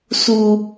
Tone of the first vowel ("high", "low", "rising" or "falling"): high